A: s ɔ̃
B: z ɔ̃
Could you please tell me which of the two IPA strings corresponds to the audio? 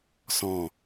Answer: A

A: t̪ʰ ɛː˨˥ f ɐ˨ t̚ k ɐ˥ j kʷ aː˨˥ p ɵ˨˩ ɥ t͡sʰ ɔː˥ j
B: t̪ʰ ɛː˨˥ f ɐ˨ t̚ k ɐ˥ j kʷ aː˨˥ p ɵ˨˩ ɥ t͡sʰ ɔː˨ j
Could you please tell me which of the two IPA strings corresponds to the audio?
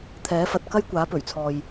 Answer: B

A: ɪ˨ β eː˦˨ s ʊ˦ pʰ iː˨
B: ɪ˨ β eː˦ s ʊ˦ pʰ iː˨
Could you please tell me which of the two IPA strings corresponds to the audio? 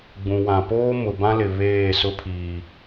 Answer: A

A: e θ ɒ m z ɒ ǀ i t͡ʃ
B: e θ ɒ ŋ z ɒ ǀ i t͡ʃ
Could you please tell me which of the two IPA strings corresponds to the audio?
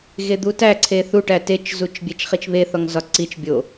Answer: B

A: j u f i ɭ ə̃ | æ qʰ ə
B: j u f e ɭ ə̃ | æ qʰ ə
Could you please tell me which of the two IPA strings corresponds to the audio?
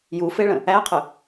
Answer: B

